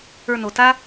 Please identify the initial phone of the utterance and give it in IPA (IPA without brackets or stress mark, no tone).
ə˞